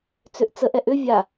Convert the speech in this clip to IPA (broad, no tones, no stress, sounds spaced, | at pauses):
t͡s ʏ ʔ t͡s ə ʔ ɛ ʔ ʏ vʲ a